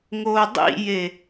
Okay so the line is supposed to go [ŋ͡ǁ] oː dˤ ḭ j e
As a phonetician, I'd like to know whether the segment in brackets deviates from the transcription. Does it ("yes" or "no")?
yes